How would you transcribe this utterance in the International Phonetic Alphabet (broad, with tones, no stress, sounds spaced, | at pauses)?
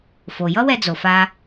f o˩ j ʌ˥ w ɛ˧ d͡z o˩ f a˧